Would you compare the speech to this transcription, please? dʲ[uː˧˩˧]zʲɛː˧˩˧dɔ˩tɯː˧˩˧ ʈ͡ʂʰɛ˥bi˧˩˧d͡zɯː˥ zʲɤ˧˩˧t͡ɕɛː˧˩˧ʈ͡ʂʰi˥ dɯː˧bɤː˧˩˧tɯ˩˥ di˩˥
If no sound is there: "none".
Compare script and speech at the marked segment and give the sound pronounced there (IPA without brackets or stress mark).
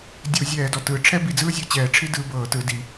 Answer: uː˧˩˧